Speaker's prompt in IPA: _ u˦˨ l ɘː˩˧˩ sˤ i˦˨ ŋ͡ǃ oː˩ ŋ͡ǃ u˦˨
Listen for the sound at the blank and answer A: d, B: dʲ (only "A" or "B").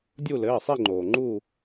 B